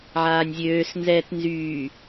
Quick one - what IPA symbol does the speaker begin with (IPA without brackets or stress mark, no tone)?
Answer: ʕ